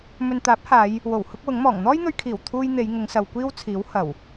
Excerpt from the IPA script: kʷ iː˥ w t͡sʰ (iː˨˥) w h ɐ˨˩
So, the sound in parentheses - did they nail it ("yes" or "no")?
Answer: yes